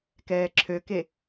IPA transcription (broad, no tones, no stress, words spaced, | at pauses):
kɛːǁʰøke